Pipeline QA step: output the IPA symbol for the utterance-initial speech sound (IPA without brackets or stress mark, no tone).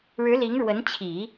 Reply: ɻ